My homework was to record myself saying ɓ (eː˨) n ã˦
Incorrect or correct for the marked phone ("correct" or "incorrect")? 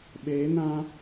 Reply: incorrect